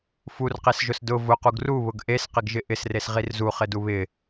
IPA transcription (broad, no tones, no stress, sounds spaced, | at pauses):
f u r q e s ʒ ʊ s d ʊ v ʊ q u ɡ r u β ʊ ɡ ʔ e s q ɪ ɡ ʒ ɪ ʔ ɪ s r e s ʁ i r z u χ ɪ d u β ɪ